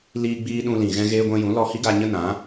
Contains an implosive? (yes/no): yes